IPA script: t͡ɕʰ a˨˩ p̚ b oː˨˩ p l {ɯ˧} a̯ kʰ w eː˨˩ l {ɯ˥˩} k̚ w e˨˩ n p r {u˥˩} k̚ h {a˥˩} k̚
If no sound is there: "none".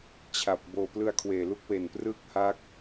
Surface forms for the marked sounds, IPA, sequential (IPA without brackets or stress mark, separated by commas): ɯ˧, u˥˩, ɯ˥˩, a˦˥